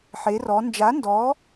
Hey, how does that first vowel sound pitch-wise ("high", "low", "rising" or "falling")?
rising